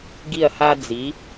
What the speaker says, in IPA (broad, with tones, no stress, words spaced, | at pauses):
ɡi˧˩ɐ̯ha˧d͡zi˩˧